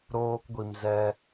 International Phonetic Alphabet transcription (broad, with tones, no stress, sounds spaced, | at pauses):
ɾ oː˧ k ɡʷ i˨ m z ɛ˧